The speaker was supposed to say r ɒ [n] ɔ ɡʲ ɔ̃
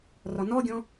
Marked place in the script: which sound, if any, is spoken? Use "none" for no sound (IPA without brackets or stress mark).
n